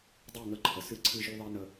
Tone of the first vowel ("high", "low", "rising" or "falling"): falling